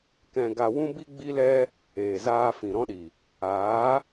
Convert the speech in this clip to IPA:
k ɛ̃˧ ɡ a˧ w ũ˦ b i˦ ɡ͡b i˦ l ɛ˦ | eː˨ z aː˧ f ĩ˨ ɾ ɔ̃˦ ɗ i˨ | aː˨˦

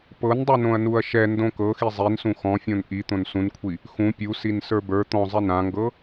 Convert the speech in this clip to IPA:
p ɤ n dˤ u n õ ɐ̯ n u ɐ̯ ʃ ɛ n d õ k ɤ x i zˤ i n s ũ x ɔ̃ fʲ õ n ʔ i t̪ õ n s ũ n kʷʰ i | x ũ pʲ u s i n s ə˞ b ə˞ t̪ ɔ̃ zˤ i n ã ŋ ɡ ɤ

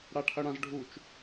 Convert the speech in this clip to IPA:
ɽ a ʈʰ ɐ ɽ ã z ɖʱ u t͡ʃ

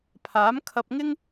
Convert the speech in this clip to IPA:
pʰ aː˨˥ m kʰ ɐ˧ p̚ ŋ ɪ˥ ŋ

